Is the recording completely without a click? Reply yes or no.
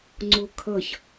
no